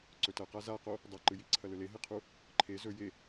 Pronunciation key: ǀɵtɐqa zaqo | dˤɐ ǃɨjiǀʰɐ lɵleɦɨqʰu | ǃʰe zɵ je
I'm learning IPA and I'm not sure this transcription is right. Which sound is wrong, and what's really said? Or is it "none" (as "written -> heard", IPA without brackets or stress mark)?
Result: none